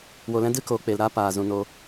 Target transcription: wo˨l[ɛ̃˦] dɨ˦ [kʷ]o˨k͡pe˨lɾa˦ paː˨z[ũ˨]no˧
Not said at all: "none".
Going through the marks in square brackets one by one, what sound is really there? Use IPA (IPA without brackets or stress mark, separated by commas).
ɛ̃˦, k, ũ˨